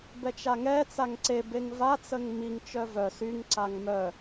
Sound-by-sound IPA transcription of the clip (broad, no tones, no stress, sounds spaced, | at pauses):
b ɛ t͡ʃ a ŋ ɛ t͡s a ŋ ǀ e b e ŋ v a t͡s ə ŋ m i ŋ t͡ʃ œ v œ s y ŋ ǀ a ŋ m œ